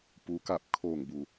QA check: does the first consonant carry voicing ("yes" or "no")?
no